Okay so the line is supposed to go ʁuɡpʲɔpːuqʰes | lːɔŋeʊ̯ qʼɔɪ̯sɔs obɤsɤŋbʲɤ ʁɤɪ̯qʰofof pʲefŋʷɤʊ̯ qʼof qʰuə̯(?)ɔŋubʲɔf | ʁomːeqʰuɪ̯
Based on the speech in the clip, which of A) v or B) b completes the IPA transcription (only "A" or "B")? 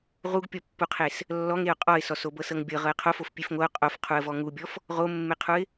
A